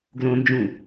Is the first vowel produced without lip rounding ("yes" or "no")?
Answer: no